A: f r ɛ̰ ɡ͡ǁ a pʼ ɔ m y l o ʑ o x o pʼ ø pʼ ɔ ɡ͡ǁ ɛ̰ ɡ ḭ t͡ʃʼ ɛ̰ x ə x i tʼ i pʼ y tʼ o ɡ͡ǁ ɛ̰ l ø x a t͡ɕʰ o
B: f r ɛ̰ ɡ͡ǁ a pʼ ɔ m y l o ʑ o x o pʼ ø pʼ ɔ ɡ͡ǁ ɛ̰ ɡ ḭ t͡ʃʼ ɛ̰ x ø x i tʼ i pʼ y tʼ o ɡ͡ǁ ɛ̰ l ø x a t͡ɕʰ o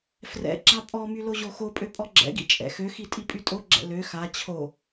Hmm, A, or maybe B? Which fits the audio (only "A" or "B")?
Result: B